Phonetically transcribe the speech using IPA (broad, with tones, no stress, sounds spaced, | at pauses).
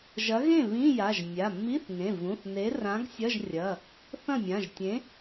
ʒ ɐ˨˥ ɣ ẽ˥˩ β ĩ˧˥˧ j a˩˧˩ ʒ mʲ a˩˧˩ mː i˧˥˧ θ ŋ ẽ˩˧˩ v ũ˩˧˩ θ n e˨˥ r ã˨˥ ɡ sʲ ɐ˧˥˧ ʒ rʲ ɐ˩˧˩ | θ ɐ̃˥˩ mʲ ã˩˧˩ ʒ tʲ ẽ˨˥